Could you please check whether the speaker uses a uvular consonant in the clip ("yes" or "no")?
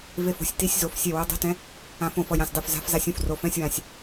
no